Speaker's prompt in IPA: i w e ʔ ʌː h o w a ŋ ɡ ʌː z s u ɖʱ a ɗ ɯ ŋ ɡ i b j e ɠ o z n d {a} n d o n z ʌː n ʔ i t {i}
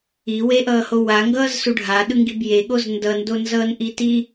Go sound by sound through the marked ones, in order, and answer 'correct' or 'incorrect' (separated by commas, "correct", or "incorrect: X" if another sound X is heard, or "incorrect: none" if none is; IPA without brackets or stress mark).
incorrect: ʌ, correct